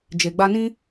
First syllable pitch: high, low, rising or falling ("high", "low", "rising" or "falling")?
low